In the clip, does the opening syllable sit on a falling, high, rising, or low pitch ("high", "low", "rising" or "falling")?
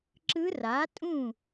rising